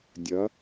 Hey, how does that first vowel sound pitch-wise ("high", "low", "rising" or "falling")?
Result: rising